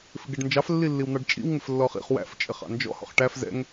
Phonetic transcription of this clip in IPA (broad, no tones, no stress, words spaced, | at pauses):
fɪɡɛɖnd͡ʒɑf lːilːiwn̪ɑɖt͡ʃʼḭw ŋɪflːɔχḭχ wæ̰f t͡ʃʼɪχɑ̰nd͡ʒɔ̰ hɔ̰χʈæf zɛ̰ŋ